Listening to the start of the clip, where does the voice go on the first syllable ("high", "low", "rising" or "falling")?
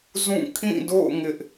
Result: falling